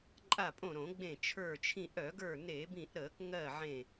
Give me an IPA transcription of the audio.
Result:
ǃʼa˧˩pʼõ˧˩ ɾõ˧˩˧ɡ͡bẽ˧˩ t͡ʃʰə˞˧˩t͡ʃʰĩ˧˩ ʔœ˧˩˧ɡə˞˧˩ ne˧˩˧bĩ˧˩ʔɾəː˧˩˧kŋɜ˧˩ ʕẽ˧˩

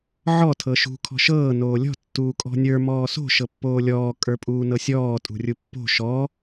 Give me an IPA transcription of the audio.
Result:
ʕɔ tʰɤʃṳ kʰɔ̤ʃɤː noːlʲɔ̤ tːuːkʼɔ̤nʲə˞ mɔːso̤ ʃɤpːoːlʲɔː kʼə˞pʼuːnɤsʲɔː tʼṳrʲupːo̤ ʃɔ

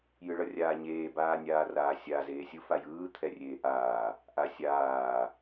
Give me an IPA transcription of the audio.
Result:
jɯɭʌrʲaːɲeː baːnʲaːraːsʲa zeːsʲɯ fajɯː t̪ʰɛrʲeːʔaː | ʔasʲaː

